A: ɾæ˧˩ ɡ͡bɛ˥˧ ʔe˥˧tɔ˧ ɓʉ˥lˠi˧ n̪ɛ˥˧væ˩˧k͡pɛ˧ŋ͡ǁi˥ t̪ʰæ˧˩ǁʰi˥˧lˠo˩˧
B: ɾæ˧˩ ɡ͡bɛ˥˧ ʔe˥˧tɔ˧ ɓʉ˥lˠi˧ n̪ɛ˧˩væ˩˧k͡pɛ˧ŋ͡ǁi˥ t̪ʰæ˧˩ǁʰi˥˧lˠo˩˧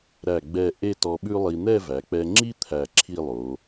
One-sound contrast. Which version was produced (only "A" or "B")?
A